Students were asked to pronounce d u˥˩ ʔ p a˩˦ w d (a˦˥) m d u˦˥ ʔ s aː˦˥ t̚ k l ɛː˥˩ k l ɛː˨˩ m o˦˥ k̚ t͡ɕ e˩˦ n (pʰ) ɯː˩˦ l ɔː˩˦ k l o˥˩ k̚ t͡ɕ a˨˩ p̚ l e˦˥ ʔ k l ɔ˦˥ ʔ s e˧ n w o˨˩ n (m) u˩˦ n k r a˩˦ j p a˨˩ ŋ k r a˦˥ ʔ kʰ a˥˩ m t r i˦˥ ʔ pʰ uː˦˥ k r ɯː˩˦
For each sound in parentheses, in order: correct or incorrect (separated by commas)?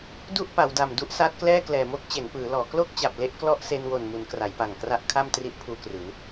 incorrect, incorrect, correct